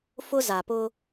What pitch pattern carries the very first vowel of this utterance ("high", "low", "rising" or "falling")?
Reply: high